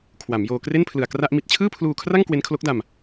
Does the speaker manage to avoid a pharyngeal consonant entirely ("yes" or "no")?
yes